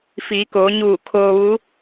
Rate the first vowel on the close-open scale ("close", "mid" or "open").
close